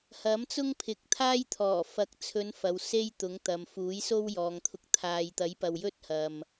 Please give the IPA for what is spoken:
h ɐ˨˥ m t͡s ʊ˥ ŋ pʰ ɪ˨˥ k̚ t̪ʰ aː˥ j t̪ʰ ɔː˨˩ f ɐ˨˥ k̚ t͡sʰ ɵ˨˧ n f ɐ˨ w s e˥ j t̪ ʊ˨˥ ŋ t̪ ɐ˨ m f uː˨˥ j s o˥ w j ɔː˨ ŋ t̪ʰ ʊ˧ k̚ t̪ʰ aː˨ j t̪ ɐ˨˥ j p ɐ˨ w j ɵ˥ t̚ h ɐ˨ m

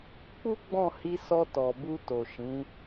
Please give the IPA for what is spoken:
k͡p u˦ ɡ͡b ɔ̃˦˨ h i˧ s ɔ˧ t ɔ˨ b u˧ t o˨ ʃ ĩ˨˦

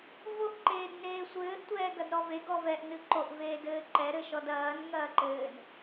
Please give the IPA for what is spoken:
v o ʔ ǃ eː d n eː sʷ ɘː ʔ tʷ ɛː ɡ ɐ d ɾ ɔ v e ɡ ɔ v ɛ ʔ n ɨ ǃ o ʔ v eː d ɘː ǃ ɛ ɾ ɘ ʃ ɔ d ɐː n ŋ ɐː ǃ ɘː n

